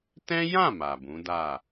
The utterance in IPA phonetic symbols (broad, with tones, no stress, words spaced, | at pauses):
tɛ̃˦jã˦˨ ma˨bũ˨˦da˦˨